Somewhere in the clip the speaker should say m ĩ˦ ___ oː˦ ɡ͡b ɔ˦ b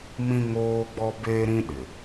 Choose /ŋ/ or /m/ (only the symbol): ŋ